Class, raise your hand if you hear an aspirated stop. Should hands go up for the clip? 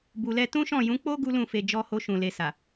no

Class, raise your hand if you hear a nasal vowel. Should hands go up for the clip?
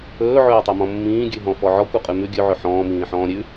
yes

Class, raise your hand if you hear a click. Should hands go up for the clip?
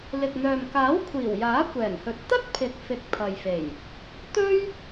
no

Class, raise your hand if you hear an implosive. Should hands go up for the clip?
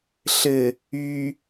no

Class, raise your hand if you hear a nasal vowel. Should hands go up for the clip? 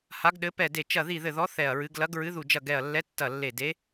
no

